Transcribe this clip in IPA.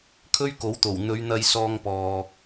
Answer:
kʰ ɵ˥ ɥ k o˨˥ w t̪ o˨˩ w n̪ ɵ˨˧ ɥ n̪ ɐ˧ j s ɔː˧ ŋ p ɔː˨

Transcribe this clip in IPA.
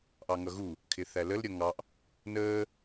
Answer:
ʔ ɑ ŋ ʌ ɣ u | kʰ ɪ θ æ l ə l ɾʲ ʌ ŋ ɑ ʔ | n əː

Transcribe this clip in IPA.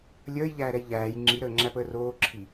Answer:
lʲ əː j ʎ æː ɾ ɛ j ʎ æː j ŋ͡ǁ i ɾ əː ŋ͡ǁ æ p əː r oː ǁʰ i

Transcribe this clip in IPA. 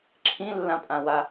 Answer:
ǁʰ ĩ lː ã pʼ ã w a

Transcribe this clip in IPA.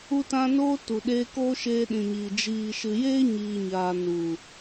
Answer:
u˧ t ã˧ n oː˦ t u˨ ɗ eː˧ k oː˦ ʃ eː˧ ɗ ĩ˨ ɲ iː˨ d͡ʒ iː˨ ʃ ɨ˨ j eː˦ ɲ iː˨ ɲ aː˨ n u˨

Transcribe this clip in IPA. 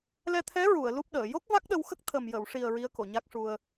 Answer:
l ɛ˧ t̪ʰ ɛ˧˥ ɹ u˨˩˨ ə̯ l u˦˥ p̚ ɗ əː˨˩˨ j o˦˥ k̚ v a˦˥ k̚ ɗ ə˧ w x ə˦˥ k̚ t̪ʰ ə˨˩ m j ə˨˩˨ w ʂ i˨˩ ə̯ ɹ i˧˥ ə̯ k o˨˩˨ ɲ a˦˥ k̚ ʂ u˧ ə̯

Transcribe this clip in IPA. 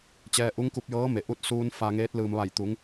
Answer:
t͡ɕ ɛː˧ ʔ u˧˥ ŋ k u˧ p̚ j ɤː˧˥ m e˩ ʔ u˧ t̚ s uː˧ n f a˧ ŋ eː˧˥ t̚ l ɯː˩ m ʋ a˧˩ j t̪ u˩˧ ŋ

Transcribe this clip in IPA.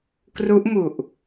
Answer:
k r u˦˥ ʔ m u˨˩ ʔ

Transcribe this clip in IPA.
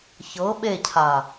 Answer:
ç ɤ ɓ e cʰ a

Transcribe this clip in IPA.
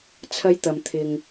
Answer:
t͡sʰ ɐ˥ j t̪ ɐ˨ m t̪ʰ ɪ˨ ŋ

